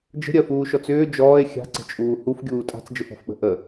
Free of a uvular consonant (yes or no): yes